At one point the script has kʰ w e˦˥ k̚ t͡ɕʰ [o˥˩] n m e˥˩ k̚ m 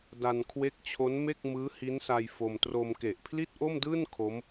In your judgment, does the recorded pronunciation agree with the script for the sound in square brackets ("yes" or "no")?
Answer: no